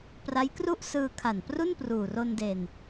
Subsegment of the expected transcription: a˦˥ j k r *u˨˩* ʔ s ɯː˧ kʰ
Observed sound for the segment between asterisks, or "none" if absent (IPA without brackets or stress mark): u˥˩